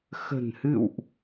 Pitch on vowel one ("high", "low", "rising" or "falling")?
low